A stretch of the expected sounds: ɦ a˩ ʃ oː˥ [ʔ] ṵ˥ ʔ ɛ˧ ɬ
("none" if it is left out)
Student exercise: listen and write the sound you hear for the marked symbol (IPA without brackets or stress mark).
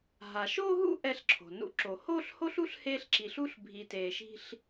ɦ